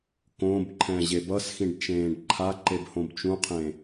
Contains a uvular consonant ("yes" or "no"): yes